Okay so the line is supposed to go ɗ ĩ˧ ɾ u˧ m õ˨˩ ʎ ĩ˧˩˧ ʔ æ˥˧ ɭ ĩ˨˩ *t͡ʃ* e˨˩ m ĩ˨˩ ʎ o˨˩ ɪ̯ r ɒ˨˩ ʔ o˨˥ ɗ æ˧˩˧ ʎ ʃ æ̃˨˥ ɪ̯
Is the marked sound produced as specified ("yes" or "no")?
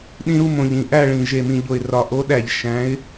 no